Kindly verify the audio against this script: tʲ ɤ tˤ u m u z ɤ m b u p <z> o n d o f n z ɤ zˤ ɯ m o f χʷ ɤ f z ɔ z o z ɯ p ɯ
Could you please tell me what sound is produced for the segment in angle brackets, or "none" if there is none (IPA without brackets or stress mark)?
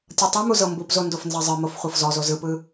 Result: z